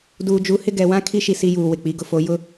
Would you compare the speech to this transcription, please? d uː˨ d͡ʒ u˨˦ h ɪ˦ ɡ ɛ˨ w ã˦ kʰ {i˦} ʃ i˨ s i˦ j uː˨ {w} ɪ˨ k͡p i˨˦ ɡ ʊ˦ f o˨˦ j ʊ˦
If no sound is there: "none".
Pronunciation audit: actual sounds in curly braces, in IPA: i˦, w

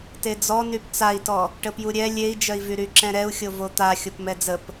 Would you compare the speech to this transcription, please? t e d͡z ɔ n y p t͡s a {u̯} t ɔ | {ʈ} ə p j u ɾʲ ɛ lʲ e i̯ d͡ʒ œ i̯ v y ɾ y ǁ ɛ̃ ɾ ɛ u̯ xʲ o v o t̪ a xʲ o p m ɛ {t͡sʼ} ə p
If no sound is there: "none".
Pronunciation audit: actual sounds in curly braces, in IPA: i̯, ʈ, d͡z

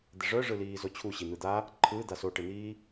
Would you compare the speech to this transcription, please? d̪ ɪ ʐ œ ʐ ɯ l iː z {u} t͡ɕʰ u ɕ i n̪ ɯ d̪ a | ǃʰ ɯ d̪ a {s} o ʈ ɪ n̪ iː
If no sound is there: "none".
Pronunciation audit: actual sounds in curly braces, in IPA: o, s

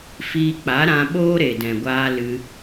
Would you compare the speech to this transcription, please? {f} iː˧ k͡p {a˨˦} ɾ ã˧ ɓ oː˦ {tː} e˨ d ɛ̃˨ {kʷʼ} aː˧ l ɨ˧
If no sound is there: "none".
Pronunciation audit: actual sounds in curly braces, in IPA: f, a˨˦, ɾ, ɡʷ

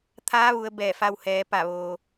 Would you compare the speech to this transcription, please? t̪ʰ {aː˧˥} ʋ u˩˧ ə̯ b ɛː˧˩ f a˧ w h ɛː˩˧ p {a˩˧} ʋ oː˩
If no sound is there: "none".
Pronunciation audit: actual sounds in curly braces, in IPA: aː˧˥, a˧˩

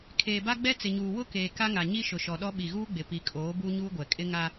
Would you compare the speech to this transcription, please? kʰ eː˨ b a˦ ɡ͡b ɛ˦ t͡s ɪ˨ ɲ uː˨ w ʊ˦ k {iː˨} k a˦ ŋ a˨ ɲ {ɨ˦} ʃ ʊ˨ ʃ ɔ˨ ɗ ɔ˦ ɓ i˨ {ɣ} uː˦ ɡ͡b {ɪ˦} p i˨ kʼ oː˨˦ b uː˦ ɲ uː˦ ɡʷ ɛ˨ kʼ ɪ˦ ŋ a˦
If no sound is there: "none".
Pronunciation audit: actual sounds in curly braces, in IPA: eː˨, i˦, ɣ, ɪ˨

